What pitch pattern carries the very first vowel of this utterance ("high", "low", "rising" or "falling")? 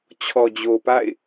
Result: low